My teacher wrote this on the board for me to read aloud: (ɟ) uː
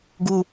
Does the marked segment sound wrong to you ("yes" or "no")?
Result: yes